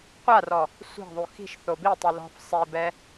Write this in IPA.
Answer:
qʷ a r ɔ | sʷ e̤ ðˤ u x i̤ ʃ θ o b i tˤ i l ɔ̤ f sˤ i b ɛ

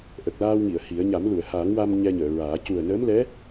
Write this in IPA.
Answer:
ʔ ə˨˩ k̚ l aː˧ w ŋ i˨˩˨ ə̯ h i˨˩˦ ə̯ ɲ a˨˩˦ m l u˨˩˨ ə̯ h aː˨˩˦ ŋ w a˧ m ɲ ɛ˧ ɲ əː˨˩˨ ɹ aː˨˩˦ c u˨˩ ə̯ n əː˧˥ m l ɛ˧˥

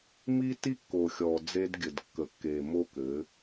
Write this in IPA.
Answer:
m i˦ tː i˦ kː o˨ xʲ ɔ˨ d͡z e˦ d ɡʲ ɘ˨ d kː ə˨ kː e˨ m o˦ k ɘ˨˦

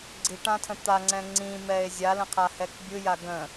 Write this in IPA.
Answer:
ɡ͡ǀ i ʈ ã tʰ ə̃ t̪ a ŋ͡ǀ ɛ̃ ŋ͡ǀ ĩ m ɛ e̯ zʲ a l ə̃ qʰ a h ɛ k bʲ ɯ j a ɡ ə̃

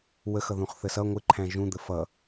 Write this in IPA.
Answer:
w ə x ʌ ð ũ χ θ ə s ʌ ŋʷ ɪ ǃʰ æ̃ ʒ ũ d̪ ə f ʌ

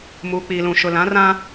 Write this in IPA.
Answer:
m uː˨ k͡p iː˨ l ũ˨ ʃ ʊ˨ l ã˨˦ r ã˦

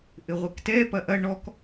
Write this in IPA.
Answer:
ʔ ɘ ʁʷ ɘ k t ɛ p ɐ ʔ ɐ ɳ ɔ k

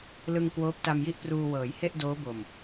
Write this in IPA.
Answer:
l ɯ˧ ŋ k w oː˦˥ p̚ t a˧ m j i˥˩ ʔ p r uː˧ w ɤː˩˦ j h e˥˩ ʔ d oː˦˥ b o˨˩ m

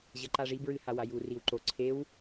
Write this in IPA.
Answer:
ʑ ɐ ǃ a ʐ i b ɹ ɨ h a w a j u r i w ǃ o ǀʰ e w

